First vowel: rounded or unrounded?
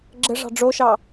unrounded